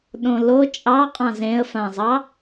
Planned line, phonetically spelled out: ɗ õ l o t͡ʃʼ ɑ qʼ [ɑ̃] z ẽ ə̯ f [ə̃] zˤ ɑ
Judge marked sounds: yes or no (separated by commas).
yes, no